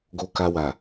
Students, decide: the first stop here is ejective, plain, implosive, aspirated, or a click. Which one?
plain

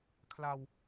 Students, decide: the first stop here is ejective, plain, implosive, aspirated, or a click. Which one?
aspirated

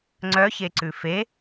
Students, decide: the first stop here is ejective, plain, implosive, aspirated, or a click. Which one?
click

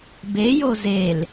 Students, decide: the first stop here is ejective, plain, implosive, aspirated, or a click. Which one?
plain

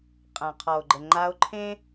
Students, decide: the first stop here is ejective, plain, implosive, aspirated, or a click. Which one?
ejective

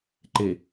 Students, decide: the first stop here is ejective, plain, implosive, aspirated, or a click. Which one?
click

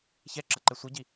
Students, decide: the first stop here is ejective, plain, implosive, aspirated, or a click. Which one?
click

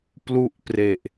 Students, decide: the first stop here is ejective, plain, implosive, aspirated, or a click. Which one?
plain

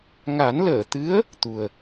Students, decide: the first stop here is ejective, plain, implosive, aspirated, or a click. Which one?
plain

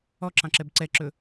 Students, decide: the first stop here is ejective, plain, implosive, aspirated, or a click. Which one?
click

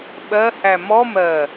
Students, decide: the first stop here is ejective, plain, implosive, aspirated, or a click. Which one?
implosive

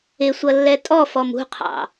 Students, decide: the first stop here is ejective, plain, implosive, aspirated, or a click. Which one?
ejective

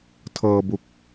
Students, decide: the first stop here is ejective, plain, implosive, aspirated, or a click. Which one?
aspirated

